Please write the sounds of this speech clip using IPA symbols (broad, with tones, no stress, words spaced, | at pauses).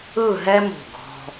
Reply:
ɯ˥˧ɦɛ˥mṳ˧˩ ɡʱɔ̤˧